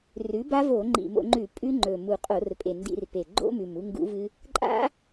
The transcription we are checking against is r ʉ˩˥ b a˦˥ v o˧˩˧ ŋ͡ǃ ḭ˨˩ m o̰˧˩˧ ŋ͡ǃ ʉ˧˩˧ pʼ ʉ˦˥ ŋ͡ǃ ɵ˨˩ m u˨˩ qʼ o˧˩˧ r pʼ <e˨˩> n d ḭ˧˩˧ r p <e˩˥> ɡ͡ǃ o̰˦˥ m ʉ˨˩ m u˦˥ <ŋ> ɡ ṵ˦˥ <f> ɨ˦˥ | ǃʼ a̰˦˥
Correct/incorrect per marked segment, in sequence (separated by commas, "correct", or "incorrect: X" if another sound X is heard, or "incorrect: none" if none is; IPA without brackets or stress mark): correct, incorrect: e˨˩, correct, incorrect: v